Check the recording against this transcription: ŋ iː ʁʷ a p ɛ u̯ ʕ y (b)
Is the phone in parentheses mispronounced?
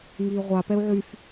yes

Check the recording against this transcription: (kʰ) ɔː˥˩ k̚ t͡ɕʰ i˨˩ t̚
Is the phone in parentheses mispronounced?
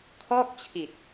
no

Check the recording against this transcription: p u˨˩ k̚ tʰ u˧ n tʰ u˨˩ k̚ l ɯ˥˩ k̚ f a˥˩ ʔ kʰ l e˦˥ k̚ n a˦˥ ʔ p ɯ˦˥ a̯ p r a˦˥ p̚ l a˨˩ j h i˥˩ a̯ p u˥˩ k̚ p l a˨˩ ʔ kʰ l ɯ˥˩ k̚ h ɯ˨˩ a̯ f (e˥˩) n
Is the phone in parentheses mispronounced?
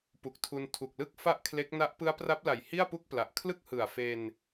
yes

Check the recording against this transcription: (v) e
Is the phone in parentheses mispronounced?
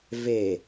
no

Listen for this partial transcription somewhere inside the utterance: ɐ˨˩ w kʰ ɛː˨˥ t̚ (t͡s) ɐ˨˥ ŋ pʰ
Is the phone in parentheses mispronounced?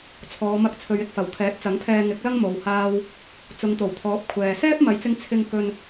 no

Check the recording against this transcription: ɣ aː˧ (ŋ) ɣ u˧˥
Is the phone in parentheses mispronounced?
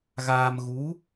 yes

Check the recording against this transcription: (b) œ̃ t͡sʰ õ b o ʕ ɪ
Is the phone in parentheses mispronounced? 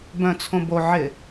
no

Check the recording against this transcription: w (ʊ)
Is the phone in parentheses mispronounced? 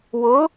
no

